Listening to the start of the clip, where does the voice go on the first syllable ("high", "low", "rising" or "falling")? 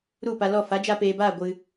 falling